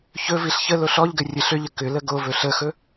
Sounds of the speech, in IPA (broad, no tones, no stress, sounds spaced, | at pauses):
ç ɵ v i ɬ ç ə l o ɬ ɔ ʎ ɡ ɘ rʲ ɘ ɬ ʏ ʎ ə k ʏ l ə ɡ o v ɵ ɬ ə x ɵ